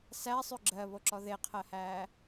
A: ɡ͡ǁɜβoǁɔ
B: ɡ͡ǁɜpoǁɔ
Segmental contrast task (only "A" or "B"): A